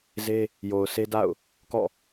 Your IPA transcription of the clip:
z e˦ | j o˨ ʊ̯ sʰ e˦ d a̰˦˨ ʊ̯ | k ɔ̰˦˨

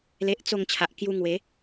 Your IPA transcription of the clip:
l e˦ ʔ t͡s o˥˧ ŋ t͡ɕʰ a˨ ʔ k j u˧ ŋ w e˨˦

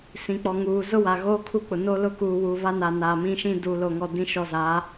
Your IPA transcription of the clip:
s ĩ˨ k͡p ɔ˨ ŋ uː˨ z ʊ˦ w a˨ ɣ oː˦ kʰ u˦ k͡p ʊ˨ n o˦ l ʊ˦ k uː˨ w u˨ β a˦ n a˨ n a˨ m ĩ˦ ʃ ĩ˦ d uː˨ l o˨ ŋ ɔ˨ d ĩ˨ ʃ ɔ˨ z a˨˦

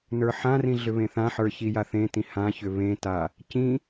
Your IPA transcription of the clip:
n ə˞ ħ ã r ĩ ɮ ʏ β ẽ θ ã ħ ə˞ ç i j a θ ẽ t ĩ h ã ç ʏ β ẽ t a | c ĩ

